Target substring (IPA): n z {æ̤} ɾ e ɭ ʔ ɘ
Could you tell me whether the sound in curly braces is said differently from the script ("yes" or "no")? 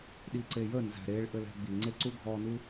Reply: no